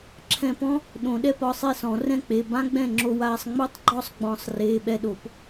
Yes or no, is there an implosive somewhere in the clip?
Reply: yes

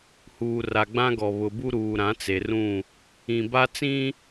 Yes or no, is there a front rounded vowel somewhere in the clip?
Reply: no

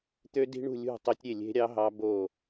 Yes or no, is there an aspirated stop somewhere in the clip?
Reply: no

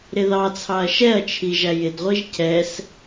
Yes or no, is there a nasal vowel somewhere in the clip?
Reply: no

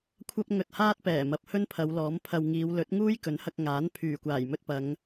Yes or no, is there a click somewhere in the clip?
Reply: no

